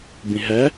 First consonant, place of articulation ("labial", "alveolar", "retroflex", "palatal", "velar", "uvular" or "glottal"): labial